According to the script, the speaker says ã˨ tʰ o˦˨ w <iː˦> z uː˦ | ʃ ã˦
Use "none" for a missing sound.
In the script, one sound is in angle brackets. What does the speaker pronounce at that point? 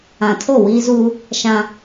iː˦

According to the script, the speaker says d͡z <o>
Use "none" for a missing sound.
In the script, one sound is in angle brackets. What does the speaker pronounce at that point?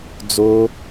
o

